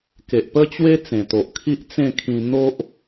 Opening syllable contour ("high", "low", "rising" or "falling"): low